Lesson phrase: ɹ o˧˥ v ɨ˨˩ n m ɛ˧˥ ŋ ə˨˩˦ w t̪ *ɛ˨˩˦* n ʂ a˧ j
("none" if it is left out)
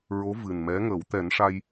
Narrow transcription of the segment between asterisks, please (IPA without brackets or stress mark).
ɛ˨˩˦